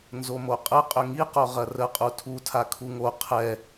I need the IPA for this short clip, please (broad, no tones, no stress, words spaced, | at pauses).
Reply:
nzomoqʼə qʼʏŋiqo ʁɐrəqʼu tʰutʰa kʰuŋo qʰɛ